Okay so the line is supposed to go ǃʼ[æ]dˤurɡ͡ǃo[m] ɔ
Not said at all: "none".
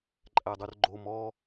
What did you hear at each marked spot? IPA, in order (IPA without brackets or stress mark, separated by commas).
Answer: æ, m